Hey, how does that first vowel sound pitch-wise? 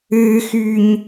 high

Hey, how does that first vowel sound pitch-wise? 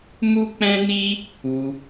high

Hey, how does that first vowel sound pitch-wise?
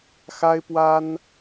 high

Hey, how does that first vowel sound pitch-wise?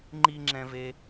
high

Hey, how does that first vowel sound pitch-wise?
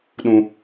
low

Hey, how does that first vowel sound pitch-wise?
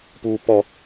high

